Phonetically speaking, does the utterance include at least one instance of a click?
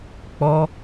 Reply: no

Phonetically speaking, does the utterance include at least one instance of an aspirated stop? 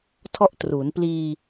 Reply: yes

